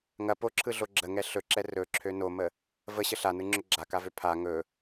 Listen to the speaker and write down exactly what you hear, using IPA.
ŋ ɐ p o ǁʰ ɯ ɮ o ɡ͡ǁ ə ŋ ɛ ɬ ɵ ǁ ɛ r ɵ ǁʰ ø n o m ə | v ə ɕ ə ɬ a n ɯ ŋ͡ǁ ɵ ɡ͡ǁ a k a v ø pʰ a ŋ ɵ

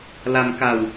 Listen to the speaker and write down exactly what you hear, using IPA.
l a˧ m k a˧ w

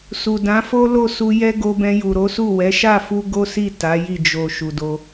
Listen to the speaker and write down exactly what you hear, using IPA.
s u˨ d ã˨˦ f o˦ l o˦˨ s u˧ j ɛ˦ ɡ o˧ b ɛ̃˧ j u˨ ɾ o˨˦ s u˦˨ w ɛ˨˦ ʃ a˦˨ f u˧ ɡ o˦ s i˦˨ t a˨˦ j i˦˨ d͡ʒ o˨ ʃ u˨ d o˧

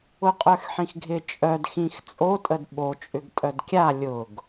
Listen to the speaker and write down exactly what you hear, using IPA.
ʊ qʼ œ x ħ ĩ x ɡʱ ɪ t͡ʃʼ œ d x ĩ x t͡sʼ o tʼ ə d ɓ o t͡ʃʼ ʏ ɡ tʼ œ d kʲ a lʲ ʊ ɡ

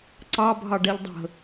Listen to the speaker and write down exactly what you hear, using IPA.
ǀ ɑ bʱ ɑ ɖ ɛ ʎ dˤ ə̤

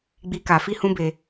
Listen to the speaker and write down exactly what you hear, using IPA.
ɡ͡b i˦ k a˧ f i˦ h ũ˦ b e˧

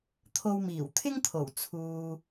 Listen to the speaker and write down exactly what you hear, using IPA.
t̪ʰ o˧ w m iː˨˩ w t̪ʰ ɪ˥ ŋ t̪ʰ o˨˩ w t͡sʰ uː˨

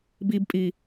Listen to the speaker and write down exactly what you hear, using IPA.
b i b pʼ i

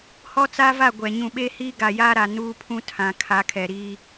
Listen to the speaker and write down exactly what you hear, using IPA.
h ɔ˦ t͡s a˦ v a˦˨ ɡʷ ɛ˨ ɲ ũ˨ ɓ e˦ h iː˦ ɡ a˨ j a˦ ɾ a˨ n uː˦ pʰ ũ˦ tʰ ã˨ kʰ a˨˦ kʰ ɛ˨ ɾ iː˦

